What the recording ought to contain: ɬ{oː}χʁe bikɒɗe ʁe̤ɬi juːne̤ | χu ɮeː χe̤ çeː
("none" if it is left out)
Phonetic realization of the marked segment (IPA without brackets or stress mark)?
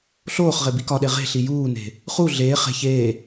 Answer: oː